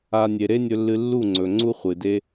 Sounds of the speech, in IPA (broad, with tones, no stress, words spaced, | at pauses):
a˧ nʲe˨ɾe˦nʲɵ˧lːɨ˧ lːu˦˨ŋ͡ǀɵ˨ ŋ͡ǀu˦χʷɨ˨de˦